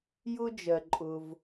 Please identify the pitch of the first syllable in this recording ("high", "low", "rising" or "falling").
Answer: high